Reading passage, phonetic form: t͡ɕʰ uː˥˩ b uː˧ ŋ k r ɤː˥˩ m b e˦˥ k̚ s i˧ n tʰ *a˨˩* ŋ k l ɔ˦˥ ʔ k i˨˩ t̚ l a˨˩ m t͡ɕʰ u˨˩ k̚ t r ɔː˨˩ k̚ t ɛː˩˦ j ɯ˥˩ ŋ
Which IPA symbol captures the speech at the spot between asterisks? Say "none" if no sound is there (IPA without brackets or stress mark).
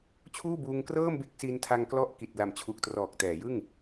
a˧